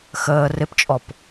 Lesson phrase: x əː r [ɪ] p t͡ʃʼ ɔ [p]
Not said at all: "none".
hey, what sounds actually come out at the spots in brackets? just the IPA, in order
ɪ, p

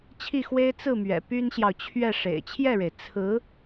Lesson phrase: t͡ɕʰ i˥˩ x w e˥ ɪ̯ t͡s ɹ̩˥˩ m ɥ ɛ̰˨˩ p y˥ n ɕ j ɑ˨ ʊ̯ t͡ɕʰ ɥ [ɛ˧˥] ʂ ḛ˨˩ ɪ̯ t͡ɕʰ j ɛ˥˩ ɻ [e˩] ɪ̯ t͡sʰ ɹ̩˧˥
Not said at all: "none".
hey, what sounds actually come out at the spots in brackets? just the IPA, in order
ɛ˥˩, e˩

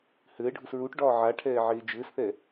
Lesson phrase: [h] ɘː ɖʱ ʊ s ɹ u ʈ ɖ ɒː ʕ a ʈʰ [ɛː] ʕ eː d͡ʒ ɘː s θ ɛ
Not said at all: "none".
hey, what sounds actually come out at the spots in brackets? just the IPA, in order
h, ɛː

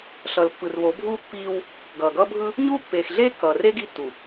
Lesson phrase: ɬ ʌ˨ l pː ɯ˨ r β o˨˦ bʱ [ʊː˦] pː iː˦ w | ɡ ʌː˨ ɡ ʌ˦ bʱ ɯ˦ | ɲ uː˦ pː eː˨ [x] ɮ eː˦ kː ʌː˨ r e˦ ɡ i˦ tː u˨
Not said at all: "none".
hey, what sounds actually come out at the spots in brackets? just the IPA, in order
uː˦, x

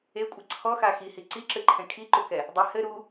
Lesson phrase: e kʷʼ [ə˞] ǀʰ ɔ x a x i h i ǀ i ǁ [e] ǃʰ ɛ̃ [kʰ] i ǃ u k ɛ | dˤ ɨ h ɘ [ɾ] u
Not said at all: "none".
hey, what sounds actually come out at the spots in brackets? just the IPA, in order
ɐ, ɨ, kʰ, ɾ

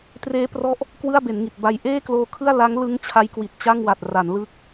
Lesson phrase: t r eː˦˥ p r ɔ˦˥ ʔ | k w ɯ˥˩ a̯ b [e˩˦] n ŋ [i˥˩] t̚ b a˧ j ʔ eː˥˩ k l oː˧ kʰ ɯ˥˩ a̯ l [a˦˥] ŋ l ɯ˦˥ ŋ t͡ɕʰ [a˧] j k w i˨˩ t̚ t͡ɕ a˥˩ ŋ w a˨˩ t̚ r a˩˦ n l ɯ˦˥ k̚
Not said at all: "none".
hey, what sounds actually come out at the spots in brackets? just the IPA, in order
e˩˦, i˨˩, a˦˥, a˦˥

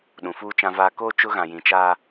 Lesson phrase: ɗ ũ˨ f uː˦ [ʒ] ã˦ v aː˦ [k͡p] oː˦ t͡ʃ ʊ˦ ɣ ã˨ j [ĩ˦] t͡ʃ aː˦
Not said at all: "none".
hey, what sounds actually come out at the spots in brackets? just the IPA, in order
t͡ʃ, k, ĩ˨

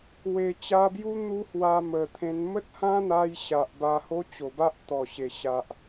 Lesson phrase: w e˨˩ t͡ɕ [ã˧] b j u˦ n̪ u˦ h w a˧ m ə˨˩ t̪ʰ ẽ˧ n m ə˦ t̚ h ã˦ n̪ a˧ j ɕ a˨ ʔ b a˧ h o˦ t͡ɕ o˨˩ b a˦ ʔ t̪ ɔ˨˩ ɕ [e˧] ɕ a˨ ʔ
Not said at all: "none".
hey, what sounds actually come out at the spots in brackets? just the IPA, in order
a˧, e˨˩

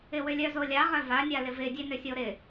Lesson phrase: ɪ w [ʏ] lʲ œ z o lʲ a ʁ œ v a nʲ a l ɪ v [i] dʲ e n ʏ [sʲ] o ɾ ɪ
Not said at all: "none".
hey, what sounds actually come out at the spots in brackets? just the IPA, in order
ʏ, ɪ, sʲ

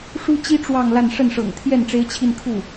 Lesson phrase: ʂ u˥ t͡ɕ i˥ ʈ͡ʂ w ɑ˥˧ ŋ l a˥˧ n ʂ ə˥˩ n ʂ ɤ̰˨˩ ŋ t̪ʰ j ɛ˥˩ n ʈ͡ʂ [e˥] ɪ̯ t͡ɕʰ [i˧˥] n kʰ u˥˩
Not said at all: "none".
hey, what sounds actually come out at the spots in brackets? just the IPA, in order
e˥, i˥˧

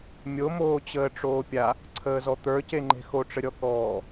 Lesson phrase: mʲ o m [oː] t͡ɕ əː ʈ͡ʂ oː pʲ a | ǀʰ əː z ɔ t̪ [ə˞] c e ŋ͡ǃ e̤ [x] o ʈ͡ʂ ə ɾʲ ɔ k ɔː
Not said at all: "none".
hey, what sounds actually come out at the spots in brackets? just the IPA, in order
oː, ə˞, x

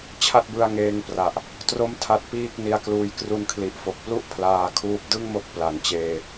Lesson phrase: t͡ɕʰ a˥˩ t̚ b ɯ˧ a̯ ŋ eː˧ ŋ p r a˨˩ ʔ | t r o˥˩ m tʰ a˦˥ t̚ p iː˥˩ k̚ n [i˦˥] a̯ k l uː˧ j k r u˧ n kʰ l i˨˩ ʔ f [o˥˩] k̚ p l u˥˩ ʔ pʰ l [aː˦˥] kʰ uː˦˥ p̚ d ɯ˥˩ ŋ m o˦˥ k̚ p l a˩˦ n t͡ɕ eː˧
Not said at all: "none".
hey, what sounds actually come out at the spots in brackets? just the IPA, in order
i˧, o˨˩, aː˧

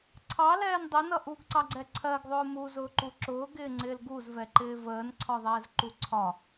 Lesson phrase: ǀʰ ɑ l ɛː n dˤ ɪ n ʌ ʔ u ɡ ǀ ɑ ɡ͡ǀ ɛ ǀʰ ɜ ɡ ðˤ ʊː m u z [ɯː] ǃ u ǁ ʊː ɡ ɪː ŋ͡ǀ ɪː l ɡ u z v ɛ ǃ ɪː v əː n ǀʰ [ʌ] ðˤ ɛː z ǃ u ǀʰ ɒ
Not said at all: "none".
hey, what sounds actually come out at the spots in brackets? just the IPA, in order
ʊː, ɒ

